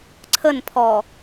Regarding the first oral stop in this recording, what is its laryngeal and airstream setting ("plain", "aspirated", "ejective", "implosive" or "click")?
click